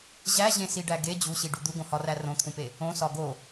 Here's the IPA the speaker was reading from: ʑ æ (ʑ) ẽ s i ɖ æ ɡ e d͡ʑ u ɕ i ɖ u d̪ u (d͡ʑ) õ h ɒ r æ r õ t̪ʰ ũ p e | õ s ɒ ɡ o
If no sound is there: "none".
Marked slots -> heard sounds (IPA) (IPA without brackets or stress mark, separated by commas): ʑ, ɡ